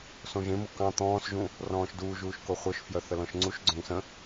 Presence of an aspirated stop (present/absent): absent